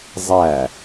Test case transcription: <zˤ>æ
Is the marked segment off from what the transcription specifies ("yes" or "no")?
no